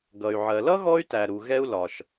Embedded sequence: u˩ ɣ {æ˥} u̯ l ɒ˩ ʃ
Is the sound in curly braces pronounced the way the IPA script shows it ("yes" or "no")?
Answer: no